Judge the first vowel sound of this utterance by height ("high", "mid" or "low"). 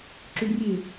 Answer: high